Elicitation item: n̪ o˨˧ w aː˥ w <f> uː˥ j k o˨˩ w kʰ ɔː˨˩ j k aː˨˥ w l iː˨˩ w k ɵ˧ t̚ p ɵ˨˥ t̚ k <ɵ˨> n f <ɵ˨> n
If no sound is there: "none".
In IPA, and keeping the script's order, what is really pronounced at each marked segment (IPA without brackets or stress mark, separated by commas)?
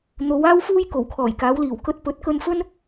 f, ɵ˧, ɵ˥